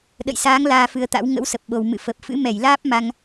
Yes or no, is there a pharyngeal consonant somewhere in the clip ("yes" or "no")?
no